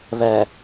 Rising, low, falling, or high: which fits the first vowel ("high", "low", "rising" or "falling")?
low